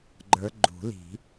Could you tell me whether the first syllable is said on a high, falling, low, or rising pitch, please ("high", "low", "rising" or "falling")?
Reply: rising